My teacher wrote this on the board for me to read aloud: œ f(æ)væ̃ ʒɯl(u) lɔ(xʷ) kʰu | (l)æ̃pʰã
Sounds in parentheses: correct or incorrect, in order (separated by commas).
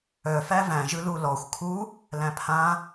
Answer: correct, correct, correct, correct